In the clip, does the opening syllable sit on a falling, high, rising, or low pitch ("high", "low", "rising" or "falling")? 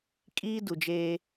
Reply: high